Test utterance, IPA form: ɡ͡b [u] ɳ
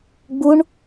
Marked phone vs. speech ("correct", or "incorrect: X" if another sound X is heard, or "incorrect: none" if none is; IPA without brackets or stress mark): correct